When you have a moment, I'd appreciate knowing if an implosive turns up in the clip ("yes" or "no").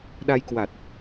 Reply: yes